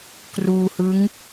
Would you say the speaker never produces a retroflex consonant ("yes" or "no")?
yes